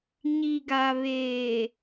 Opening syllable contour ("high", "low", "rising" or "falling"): low